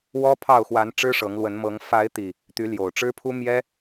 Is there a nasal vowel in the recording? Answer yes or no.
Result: no